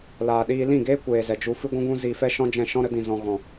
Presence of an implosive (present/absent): present